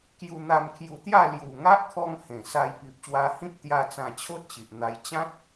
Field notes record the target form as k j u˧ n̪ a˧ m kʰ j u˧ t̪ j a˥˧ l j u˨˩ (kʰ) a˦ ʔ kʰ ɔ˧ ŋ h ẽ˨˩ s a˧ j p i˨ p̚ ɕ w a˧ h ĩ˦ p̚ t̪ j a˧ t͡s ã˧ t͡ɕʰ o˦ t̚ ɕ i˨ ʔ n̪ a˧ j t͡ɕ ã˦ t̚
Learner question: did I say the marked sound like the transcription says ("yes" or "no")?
no